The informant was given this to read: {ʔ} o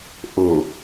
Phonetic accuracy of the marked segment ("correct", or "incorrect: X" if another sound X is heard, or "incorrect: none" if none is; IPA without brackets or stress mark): correct